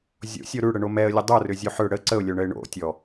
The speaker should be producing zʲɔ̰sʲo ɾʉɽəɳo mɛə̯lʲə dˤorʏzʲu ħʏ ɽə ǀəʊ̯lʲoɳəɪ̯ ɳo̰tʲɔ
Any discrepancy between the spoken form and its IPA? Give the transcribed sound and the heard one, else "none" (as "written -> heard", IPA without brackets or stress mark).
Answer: ɔ̰ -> o̰